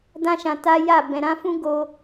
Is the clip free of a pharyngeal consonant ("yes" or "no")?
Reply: yes